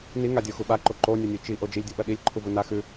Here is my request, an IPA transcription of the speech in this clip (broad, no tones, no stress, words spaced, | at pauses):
niŋadʲoxu ɓaǃo ǃonʲɐnʲʉ t͡ʃiʔo d͡ʒilʲdʲuɓɐ ɗilʲǃʰuvu na xʉ